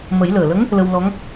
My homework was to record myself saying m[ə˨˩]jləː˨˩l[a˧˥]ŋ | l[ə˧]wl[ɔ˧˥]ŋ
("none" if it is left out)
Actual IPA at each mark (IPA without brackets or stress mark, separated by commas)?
ə˨˩˦, ə˧˥, ə˧, ɔ˧˥